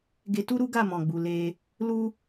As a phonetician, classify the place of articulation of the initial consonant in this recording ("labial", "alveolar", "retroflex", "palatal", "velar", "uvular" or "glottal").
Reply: velar